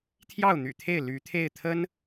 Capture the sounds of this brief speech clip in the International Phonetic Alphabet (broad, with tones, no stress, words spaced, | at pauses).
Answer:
t̪ʰjɑ˥˩ʊ̯n̪y̰˨˩t̪ʰe˥˩ɪ̯ ly˧˥t̪ʰe˥˩ɪ̯t̪ʰə˥n